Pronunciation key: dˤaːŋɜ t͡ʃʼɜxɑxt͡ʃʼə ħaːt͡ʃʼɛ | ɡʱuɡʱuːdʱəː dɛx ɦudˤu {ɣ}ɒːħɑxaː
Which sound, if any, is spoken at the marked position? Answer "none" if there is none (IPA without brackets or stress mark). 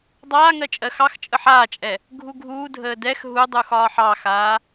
x